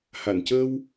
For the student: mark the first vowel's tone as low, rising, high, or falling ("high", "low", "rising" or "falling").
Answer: low